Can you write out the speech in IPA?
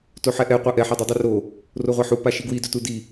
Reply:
toħɛʔɛ qʷaʔɛ ħadˤudˤoro | roʁʷaħu paʃiɡwi dɵtudi

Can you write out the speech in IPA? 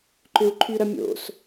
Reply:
ǃʏu̯ǃʰyɾɐ mʲo̰s

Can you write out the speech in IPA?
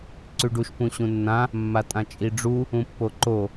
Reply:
ǀʉɖuʃ pũɕũnːã | mːatʼãt͡ʃʼiɖ͡ʐu | ũpːoǃo

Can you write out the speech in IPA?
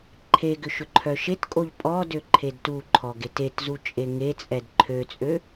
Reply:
ǃʰeɡʏ ʃʏǃʰœʃetkʼoʎ pʼɔdø ǃʰedtuǃʰɔ ɡetetzu t͡ʃʼeŋet͡sʼɛd ǃʰøt͡sʼø

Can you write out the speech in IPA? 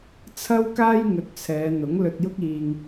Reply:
t͡sʰɐ˥wkaː˥jŋɵ˨˥t̚t͡sʰɛː˨˧ n̪ʊ˨˥ŋlɵ˧t̚jʊ˥k̚iː˧ŋ

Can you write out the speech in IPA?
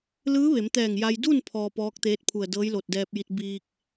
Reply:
lɯː˧˥ ʋe˩˧mt̪ɛː˧˩ŋja˧j du˥˨n pʰɔː˧pɔː˧˥k̚t̪eː˧˥t̚pʰu˧˩ə̯ dɤː˧˥jlo˧˩t̚dɛː˧p̚ji˧t̚ biː˧k̚

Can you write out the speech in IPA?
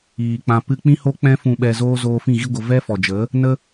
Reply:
iː˨k͡pã˧pɨ˦ k͡pĩ˦ho˦ k͡pɛ̃˦ fũ˧ɓɛ˧zoː˦ zoː˧fĩ˦˨ɣi˦ɡʷə˧ vɛ˦fɔ˨d͡ʒə˨˦ | nə˧

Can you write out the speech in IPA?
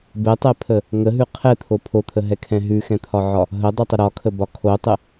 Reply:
bɛtˤɛpʰə | ŋəɦʉ qʰɛt̪ʰo pʰot̪ʰəɦɛkʰɛ̃ ɦʉxɛ̃t̪ʰɒʕɒ | ɦədˤʉtˤə ɾɒkʰəbɒ kʰotˤə

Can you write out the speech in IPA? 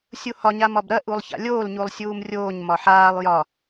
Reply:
sʲuhɒ ɲamɒbɾɐ ʔulˠça̰lʲoːl ɲulˠsʲuːmrʲoːɲ mɒħaːlˠ jɒ

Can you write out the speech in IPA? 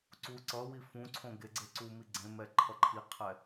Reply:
ǀu ǀʌwi fũǀʰõ ɡeɡ͡ǀeǀumi ɡ͡ǀẽmɛ ǃʰʌǃʰiqʰɛ

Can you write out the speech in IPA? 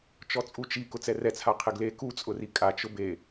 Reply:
t͡ʃɔt͡sʼut͡ʃi kʊt͡sɛrɛt͡sʰa qʰɪɡle kut͡sʼʊri kʼa t͡ʃʊbe

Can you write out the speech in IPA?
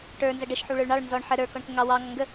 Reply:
ʈə˞ nzʌɖəʃ ħuɭə˞ɭɳɑɭ nzɔɳ ħə ɾə˞ kɔɳkəŋɑ wɑ ŋɔŋɡə

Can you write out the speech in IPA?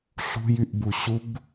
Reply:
ɬṳjyʔbu ɕub

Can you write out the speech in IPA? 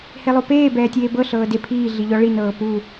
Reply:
helˠopeː bɛːtʲeːbɤ ɬɤːde pʰiː ɮiʎɔɭi nɤːpu

